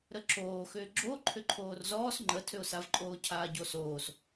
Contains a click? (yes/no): yes